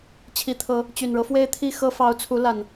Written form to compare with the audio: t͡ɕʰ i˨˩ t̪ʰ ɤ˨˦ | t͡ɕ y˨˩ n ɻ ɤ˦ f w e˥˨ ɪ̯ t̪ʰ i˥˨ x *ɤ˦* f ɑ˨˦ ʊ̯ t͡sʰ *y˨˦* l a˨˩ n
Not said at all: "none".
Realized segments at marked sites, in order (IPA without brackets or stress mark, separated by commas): ɤ˦, u˨˦